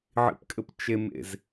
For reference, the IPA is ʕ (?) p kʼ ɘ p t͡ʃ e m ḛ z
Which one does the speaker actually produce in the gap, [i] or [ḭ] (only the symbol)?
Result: ḭ